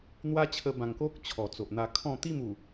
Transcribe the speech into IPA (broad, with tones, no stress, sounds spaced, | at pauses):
n̪ w a˦ t͡ɕʰ ə˧ b ã˨˩ ŋ k o˦ k̚ t͡ɕʰ ɔ˨˩ t͡s o˨ ʔ n̪ a˧ kʰ ɔ̃˥˧ t̪ i˥˧ m u˨˩